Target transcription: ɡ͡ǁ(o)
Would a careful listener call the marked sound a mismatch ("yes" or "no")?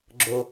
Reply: no